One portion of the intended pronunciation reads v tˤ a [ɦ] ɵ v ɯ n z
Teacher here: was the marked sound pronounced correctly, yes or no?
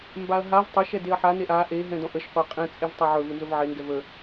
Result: no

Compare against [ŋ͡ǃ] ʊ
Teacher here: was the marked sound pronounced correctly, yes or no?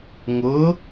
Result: no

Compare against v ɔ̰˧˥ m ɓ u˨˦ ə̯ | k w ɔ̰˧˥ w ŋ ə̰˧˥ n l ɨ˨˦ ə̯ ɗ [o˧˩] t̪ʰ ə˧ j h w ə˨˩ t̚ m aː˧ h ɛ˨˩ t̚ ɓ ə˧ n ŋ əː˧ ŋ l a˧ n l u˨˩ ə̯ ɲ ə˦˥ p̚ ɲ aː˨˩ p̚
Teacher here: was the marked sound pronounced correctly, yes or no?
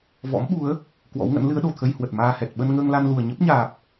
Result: no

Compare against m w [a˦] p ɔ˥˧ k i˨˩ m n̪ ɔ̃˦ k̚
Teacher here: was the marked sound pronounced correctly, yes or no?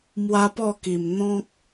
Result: yes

